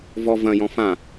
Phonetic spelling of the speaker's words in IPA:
v ɔ v ɐ̃ j ɔ̃ f ã

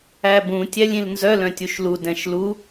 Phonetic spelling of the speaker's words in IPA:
æ b ũ tʲ æ lʲ ĩ l n z œ l œ̃ tʲ u ʃ l u d ɛ̃ ʃ l u

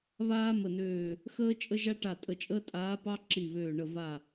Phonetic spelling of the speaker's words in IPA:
β aː˥ m ə˧˩ n øː˧˩ | x əː˥ t͡ʃʼ ə˥ ʒ a˥ ʈ a˧˩ tʼ ə˧˩ t͡ʃʼ əː˥ tʼ aː˧˥ p ɑ˥ ǁ i˧˩ β øː˧˩ ɳ ə˧˩ v a˧˩

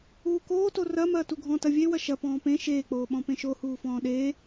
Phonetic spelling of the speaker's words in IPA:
uː k oː t o r ɐ m ɐː t u ɡʱ ɔ̃ t ɐ vʲ e w ɐ ʃ ɐ p ɔ̃ː p ẽ ʃ eː k͡p oː ɓ ɔ̃ p ẽ ʃ o h uː f ɔ̃ː ɗ eː

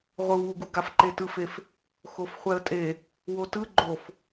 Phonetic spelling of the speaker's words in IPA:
ʁʷ ɯ w u ɡ u ɡ a f ǃ e t ɯ f e f | x o f χʷ ɛ ə̯ tʼ e | w o t ɯ ɡ͡ǃ o f

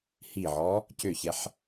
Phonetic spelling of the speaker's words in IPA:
h i ʕ ɔ | c ø ç ɛ ħ

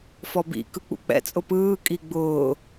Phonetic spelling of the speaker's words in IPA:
f ɔ b ḭ k ɯ k͡p ṵ k͡p ɛ̰ t͡sʼ ʊ p ɯː kʼ i ɡ͡b ʊː

